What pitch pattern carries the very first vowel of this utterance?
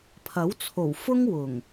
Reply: rising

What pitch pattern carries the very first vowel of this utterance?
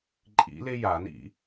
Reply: rising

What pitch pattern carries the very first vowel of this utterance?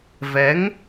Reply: rising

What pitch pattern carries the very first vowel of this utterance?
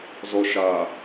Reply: low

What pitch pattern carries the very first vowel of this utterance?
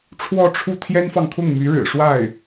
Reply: falling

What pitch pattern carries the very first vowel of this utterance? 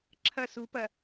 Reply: falling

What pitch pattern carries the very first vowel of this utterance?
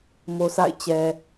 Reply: low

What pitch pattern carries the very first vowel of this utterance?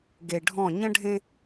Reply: low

